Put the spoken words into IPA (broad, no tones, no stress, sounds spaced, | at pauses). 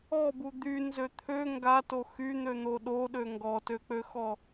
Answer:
ɔ b u d̪ y n z ø t̪ʰ ø ŋ ɡ a t o x y n̪ ø n̪ o ɗ o ɗ ø ŋ ɡ ɔ t ø k͡p ø x ɔ